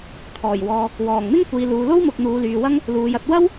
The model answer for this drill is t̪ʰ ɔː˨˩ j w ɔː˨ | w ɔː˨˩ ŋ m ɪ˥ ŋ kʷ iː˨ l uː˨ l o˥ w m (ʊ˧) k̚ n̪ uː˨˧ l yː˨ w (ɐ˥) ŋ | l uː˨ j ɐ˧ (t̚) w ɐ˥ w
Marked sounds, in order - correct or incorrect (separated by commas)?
incorrect, correct, correct